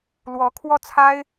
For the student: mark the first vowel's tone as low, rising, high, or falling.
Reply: rising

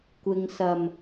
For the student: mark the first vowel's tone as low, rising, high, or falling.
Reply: low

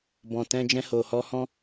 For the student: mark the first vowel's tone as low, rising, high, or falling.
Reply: low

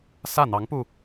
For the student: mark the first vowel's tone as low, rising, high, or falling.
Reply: falling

